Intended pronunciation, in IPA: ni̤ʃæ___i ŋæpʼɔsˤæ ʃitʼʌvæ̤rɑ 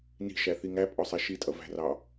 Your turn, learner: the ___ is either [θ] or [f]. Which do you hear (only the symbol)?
θ